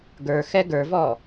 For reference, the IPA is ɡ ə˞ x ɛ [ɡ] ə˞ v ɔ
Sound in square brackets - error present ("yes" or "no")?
no